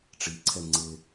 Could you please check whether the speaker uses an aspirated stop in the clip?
yes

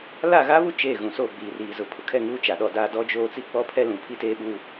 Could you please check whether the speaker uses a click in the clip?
no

